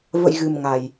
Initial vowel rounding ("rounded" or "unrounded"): unrounded